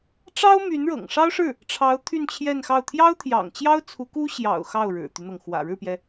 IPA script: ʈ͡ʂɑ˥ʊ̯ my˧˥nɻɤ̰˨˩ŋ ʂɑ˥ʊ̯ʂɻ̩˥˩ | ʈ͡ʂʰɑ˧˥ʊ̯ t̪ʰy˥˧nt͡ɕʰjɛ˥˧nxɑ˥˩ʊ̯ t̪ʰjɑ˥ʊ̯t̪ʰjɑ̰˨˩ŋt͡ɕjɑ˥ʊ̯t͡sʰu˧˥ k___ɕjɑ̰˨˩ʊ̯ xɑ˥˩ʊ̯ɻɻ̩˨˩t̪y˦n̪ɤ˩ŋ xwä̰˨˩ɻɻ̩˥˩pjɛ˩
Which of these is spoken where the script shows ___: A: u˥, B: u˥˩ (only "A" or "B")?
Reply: A